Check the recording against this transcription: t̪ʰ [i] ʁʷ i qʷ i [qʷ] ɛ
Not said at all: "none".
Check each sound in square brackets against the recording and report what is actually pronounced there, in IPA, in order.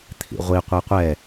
ḭ, qʷ

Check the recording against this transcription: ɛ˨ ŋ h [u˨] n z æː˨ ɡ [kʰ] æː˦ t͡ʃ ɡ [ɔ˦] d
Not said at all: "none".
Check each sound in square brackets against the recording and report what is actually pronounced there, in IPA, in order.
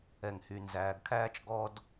y˨, kʰ, ɔ˦

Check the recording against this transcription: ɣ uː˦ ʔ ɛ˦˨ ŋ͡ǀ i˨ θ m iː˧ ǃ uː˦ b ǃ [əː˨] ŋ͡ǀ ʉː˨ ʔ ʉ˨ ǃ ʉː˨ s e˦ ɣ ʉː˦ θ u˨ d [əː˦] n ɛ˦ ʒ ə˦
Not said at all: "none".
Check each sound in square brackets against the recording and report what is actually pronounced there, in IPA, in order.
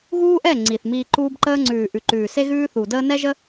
əː˦, əː˦

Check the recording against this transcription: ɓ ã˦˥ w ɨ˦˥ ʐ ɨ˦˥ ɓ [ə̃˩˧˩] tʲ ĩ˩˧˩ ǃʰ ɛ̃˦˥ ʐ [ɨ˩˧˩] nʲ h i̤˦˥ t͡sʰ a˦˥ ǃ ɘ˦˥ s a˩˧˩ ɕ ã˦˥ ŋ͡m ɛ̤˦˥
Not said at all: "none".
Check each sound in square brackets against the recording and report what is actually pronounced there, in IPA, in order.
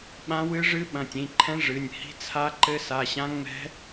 ɐ̃˩˧˩, ɨ˩˧˩

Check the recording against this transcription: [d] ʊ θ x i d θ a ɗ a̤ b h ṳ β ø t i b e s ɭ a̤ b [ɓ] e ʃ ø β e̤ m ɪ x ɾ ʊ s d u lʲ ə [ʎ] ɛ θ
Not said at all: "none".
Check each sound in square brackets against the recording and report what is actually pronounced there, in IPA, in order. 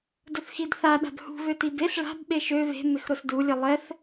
d, ɓ, lˠ

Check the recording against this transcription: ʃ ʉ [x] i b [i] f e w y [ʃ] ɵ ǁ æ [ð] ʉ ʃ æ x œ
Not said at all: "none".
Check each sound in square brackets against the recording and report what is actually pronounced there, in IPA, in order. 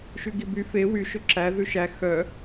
ɡ, y, ʃ, ð

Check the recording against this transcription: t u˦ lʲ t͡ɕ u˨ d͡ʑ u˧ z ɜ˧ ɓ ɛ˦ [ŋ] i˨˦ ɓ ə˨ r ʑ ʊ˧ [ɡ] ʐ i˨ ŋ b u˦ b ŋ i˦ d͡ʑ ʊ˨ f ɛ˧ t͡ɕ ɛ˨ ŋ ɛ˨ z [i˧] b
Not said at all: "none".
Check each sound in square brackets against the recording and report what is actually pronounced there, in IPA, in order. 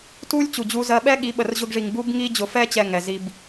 ɠ, ɡ, i˧

